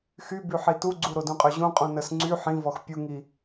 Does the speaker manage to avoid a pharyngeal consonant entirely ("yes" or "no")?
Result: no